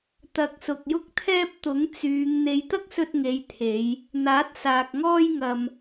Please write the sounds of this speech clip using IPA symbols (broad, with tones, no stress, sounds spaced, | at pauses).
t̪ ɐ˨ k̚ s ʊ˨ k̚ j ʊ˥ k̚ t̪ʰ ɛː˥ p̚ t̪ ʊ˨˥ ŋ t͡s yː˨˧ ŋ n̪ e˨˧ j t̪ ɐ˥ k̚ s ɵ˧ t̚ ŋ e˨˧ j t̪ʰ e˨˧ j | n̪ aː˨˥ t̚ s aː˨ k̚ ŋ ɔː˥ j ŋ ɐ˨ m